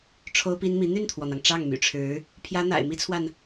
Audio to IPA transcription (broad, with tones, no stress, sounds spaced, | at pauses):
ʈ͡ʂʰ o˥ ʊ̯ p i˥ n m i˧˥ n̪ y˥˩ n t̪ʰ w ɔ˩ n̪ ɑ˩ ŋ ʈ͡ʂ ɑ˥˩ ŋ m y̰˨˩ ʈ͡ʂʰ ɻ̩˧˥ | pʰ j ä˥ n̪ a̰˨˩ ɪ̯ m i˥ t͡sʰ w a˨ n